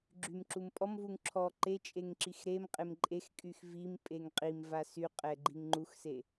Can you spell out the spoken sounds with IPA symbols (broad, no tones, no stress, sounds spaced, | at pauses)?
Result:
ɡ͡ǁ y m ǁ u m pʼ ɔ m v u ŋ ǁʰ ɔ ǃ e t͡ʃʼ e ŋ ǁ i x ɾ e m qʼ e m ǃʼ e x kʼ y x v i m pʼ e ŋ qʼ i m v a s y qʼ ɛ ɡ͡ǃ i ŋ ŋ͡ǃ u x s e